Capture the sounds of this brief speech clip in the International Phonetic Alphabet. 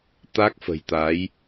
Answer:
t̪a˦˥k̚fə̤˨˩jt̪a˨˦j

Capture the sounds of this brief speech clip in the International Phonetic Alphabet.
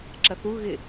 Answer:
ǁɐθu ɣɪ

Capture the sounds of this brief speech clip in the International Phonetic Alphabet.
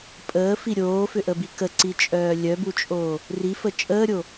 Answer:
pʼəːfi ɾʲoːfʏʔəbi kəǀit͡ʃʼœː lʲœbut͡ʃʼoː | rifə t͡ʃʼəːɾʲo

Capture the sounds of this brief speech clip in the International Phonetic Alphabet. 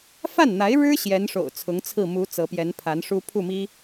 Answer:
fa˥˩nn̪a˧˥ɪ̯ ɻɻ̩˥ ɕjɛ˧˥nʂo̰˨˩ʊ̯ t͡sʰʊ˧˥ŋt͡sʰɹ̩˥˩ mu˧˥ t͡sɤ˧˥pjɛ˧˥npʰa˧˥nʂu˥ pʰu˥˩mi˥

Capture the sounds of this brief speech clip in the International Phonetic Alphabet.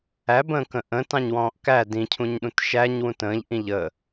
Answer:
æbə̃ːkə̃ ʔə̃ːtɑ̃ɲwɔ̃ːʔ kæ dĩcʰũɲɗũt ʃæɲwũ tə̃ːʎʔĩ ʎə

